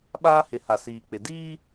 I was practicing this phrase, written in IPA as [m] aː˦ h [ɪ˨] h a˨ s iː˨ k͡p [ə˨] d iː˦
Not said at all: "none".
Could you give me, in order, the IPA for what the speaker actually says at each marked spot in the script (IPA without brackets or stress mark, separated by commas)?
ɓ, ɪ˨˦, ɪ˨